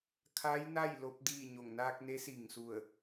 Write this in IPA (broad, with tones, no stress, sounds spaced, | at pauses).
kʰ a˧˥ j n a˥˨ j l o˧˥ p̚ d iː˥˨ ɲ o˧˩ ŋ n aː˧ k̚ n e˧˥ s i˧˩ ŋ s u˧˩ ə̯